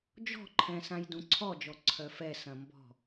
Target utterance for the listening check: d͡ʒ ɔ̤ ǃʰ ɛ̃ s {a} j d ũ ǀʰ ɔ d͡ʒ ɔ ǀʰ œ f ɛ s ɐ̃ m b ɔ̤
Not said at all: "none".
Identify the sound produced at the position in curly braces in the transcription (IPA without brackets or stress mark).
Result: ã